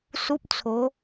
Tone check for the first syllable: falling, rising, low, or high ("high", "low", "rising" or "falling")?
high